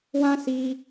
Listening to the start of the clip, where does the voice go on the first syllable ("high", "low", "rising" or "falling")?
high